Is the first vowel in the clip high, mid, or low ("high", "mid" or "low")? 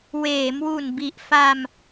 mid